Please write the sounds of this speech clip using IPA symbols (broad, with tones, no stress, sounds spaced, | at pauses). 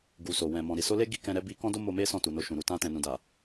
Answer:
ɡ u˨ s o˨ w ɛ̃˨ m ɔ̃˨ ɾ i˨ s o˧ l e˦ ɡ i˧ k ɛ̃˧ ɾ ɛ˦ b i˧ k ɔ̃˦ d o˦ m o˧ m e˦ s ɔ̃˦˨ t u˨ n o˧ ʃ ũ˨ ɾ u˧ t ã˧ t ɛ̃˨ n ũ˨ d a˨